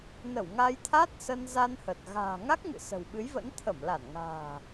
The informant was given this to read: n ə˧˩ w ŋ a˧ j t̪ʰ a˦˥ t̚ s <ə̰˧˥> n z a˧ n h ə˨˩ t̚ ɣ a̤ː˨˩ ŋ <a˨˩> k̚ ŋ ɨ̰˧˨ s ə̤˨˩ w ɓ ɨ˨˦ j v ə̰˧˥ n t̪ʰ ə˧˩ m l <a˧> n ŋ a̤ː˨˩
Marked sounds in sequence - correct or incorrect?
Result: incorrect, incorrect, incorrect

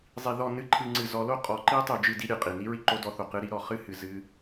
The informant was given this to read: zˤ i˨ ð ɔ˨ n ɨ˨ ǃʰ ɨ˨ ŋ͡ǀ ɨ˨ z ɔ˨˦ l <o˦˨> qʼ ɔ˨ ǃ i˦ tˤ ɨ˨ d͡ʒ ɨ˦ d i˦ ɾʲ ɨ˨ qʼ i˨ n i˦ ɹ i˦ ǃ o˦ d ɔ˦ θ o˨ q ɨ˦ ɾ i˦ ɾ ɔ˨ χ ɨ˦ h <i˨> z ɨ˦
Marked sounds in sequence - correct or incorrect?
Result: incorrect, incorrect

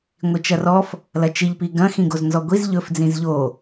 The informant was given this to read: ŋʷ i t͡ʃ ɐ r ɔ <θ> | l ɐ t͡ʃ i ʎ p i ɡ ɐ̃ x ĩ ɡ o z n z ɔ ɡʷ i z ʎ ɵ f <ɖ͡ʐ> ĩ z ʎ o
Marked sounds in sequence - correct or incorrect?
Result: incorrect, incorrect

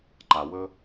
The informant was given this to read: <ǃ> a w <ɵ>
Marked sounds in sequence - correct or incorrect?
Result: correct, correct

